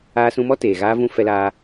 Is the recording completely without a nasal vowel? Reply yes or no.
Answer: no